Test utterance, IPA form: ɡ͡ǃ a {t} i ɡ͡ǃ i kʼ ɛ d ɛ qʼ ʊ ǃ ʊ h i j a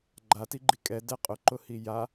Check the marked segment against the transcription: correct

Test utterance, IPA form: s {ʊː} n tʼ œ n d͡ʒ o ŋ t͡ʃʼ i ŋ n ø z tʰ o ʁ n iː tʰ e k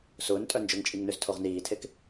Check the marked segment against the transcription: correct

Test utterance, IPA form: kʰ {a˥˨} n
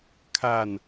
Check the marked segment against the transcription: correct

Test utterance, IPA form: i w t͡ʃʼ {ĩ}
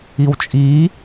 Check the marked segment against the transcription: incorrect: i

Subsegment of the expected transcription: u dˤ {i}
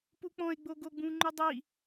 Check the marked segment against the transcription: correct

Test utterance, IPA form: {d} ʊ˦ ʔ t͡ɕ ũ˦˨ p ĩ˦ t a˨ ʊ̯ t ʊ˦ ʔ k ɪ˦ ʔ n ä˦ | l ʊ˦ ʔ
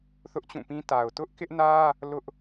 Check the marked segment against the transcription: incorrect: θ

